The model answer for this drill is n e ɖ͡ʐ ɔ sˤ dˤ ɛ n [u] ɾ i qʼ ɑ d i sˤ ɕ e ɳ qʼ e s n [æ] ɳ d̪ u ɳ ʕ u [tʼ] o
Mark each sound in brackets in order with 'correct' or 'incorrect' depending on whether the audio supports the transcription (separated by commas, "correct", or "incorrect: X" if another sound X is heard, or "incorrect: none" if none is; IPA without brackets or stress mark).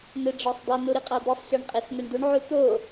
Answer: correct, incorrect: ɛ, incorrect: t̪